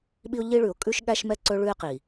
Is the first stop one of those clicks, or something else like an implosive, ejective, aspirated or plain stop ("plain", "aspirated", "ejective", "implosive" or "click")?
implosive